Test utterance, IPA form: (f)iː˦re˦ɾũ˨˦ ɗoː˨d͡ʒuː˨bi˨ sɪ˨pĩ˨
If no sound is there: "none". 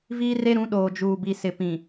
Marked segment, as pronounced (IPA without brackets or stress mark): v